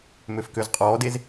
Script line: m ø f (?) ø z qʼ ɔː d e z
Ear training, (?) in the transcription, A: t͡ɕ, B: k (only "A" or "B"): B